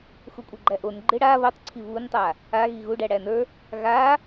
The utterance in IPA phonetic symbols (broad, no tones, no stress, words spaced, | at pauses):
xukʷʼeɡ͡ǃæʔon ɡ͡ǃɪɽa βotˤǀʰi βuntˤa | a ɣiɣuɖæ ɽænə˞ | ɣa